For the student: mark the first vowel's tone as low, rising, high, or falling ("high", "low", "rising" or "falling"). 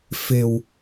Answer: low